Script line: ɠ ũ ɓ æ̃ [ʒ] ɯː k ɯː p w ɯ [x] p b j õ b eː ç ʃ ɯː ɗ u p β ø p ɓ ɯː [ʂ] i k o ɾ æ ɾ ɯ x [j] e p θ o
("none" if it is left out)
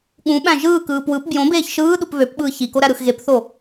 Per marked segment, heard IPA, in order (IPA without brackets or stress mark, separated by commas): ʒ, none, ç, ɣ